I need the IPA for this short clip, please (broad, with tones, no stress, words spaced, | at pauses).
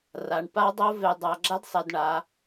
ra˩˧ɳpa˦˥dˤo˦˥ ve˩˧dˤa˩˧ɡ͡ǁa˦˥d sˤɛ˩˧dɳa˩˧